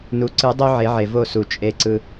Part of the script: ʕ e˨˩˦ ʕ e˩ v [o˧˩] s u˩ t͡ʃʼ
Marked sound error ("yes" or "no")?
no